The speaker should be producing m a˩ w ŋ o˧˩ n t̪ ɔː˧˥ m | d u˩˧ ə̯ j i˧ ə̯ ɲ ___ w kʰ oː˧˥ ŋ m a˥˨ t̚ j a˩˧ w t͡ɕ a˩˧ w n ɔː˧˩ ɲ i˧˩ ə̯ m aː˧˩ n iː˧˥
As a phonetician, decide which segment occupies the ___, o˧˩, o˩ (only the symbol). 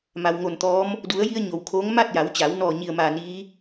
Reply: o˩